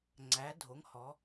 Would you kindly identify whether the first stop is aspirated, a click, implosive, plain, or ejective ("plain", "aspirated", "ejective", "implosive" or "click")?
click